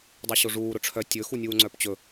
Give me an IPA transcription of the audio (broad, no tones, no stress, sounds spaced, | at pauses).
dˤ i ɕ o ʐ uː ɾ ʊ ʈ͡ʂʰ œ tʲ ɵ x u nʲ uː ŋ͡ǀ œ p t͡ɕ ɵ